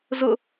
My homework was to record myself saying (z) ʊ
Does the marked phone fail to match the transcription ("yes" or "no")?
no